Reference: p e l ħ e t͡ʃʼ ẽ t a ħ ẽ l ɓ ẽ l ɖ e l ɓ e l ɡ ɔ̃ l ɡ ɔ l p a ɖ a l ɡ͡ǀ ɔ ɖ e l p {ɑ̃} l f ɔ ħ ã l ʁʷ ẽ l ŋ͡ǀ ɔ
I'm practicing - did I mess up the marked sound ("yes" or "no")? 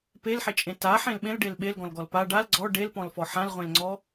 yes